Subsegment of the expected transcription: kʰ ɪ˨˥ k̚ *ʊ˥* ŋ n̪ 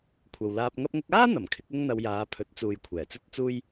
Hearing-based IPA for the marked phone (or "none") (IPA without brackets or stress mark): ʊ˥